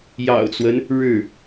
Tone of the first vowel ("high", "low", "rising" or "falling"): low